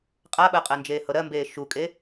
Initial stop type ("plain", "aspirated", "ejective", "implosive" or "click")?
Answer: ejective